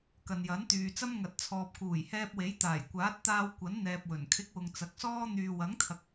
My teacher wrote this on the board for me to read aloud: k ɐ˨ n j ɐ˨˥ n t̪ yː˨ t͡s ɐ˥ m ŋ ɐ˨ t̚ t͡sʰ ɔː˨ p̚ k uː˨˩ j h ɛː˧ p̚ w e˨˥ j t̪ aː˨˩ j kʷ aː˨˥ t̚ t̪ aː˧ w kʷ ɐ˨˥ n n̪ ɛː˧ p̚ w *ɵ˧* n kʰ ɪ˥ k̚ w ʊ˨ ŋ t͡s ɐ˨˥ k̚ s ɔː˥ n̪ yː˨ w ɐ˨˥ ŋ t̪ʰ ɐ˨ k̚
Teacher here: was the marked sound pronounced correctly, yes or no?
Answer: no